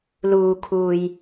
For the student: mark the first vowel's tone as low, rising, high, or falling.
low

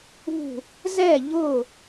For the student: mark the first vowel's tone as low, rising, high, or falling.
falling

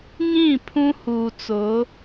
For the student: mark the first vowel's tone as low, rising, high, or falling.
falling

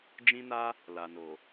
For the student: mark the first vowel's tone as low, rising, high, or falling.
high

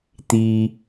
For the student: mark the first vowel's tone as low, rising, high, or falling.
high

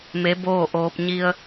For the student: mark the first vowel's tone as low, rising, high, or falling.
rising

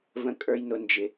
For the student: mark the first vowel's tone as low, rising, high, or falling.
high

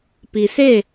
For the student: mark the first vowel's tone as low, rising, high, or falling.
low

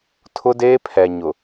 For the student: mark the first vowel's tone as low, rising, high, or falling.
high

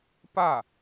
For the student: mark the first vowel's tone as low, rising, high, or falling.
falling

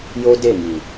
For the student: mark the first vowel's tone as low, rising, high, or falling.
high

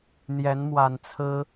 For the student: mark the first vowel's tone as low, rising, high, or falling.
rising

